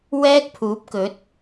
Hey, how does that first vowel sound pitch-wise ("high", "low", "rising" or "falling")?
high